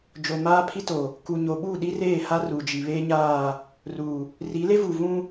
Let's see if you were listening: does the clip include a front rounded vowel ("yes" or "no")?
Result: no